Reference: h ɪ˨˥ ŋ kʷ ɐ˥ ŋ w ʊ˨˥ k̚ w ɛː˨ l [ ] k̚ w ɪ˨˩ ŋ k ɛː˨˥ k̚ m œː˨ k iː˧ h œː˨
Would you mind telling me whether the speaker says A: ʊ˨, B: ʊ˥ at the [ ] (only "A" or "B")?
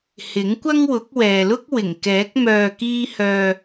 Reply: B